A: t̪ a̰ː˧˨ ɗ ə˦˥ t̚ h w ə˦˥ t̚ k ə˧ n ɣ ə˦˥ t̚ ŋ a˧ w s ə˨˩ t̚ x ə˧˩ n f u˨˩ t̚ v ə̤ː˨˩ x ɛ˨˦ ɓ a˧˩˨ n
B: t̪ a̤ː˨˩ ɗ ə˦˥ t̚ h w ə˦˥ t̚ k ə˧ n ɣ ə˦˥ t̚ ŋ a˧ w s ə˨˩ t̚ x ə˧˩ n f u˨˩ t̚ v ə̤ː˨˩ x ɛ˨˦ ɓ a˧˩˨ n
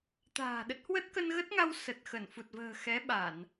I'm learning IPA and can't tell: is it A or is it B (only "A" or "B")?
B